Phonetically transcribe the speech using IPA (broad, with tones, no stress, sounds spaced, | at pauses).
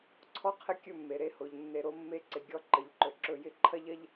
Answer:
ǀʰ ɔ˦ qʰ ɪ˧ kʲ ɵ˦˨ mː e˨ ɾ e˦˨ h o˨ ʎ nː e˧ ɾ o˦ mː e˦ ǀ ɪ˨ ɡʲ ɔ˦˨ ǃ ə˨ ʎ ǃ ɵ˨ ǁ ɵ˨ j ɪ˧ ǃʰ ɐ˦ ʎ ɐ˦ ʎ